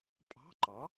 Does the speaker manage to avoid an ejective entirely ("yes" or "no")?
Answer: no